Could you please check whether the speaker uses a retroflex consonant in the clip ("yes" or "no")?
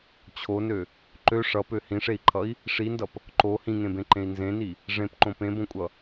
yes